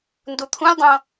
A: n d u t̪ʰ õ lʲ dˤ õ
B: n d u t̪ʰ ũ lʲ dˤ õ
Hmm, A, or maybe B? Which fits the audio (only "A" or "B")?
B